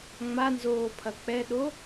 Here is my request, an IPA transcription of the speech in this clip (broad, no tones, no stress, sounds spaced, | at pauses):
ŋ͡m a n z oː pʰ ɐ k͡p ɛ ɗ o